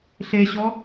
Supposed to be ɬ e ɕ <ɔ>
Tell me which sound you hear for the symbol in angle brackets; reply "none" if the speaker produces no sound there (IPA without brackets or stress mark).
ɔ